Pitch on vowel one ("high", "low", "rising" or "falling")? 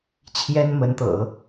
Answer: high